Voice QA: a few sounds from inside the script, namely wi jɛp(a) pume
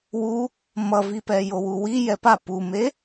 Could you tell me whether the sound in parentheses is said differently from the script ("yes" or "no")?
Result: no